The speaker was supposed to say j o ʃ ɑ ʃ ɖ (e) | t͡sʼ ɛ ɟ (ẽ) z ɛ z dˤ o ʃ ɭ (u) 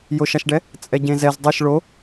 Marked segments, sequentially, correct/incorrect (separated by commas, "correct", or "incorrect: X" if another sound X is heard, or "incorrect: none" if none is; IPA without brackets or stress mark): incorrect: ɛ, correct, incorrect: o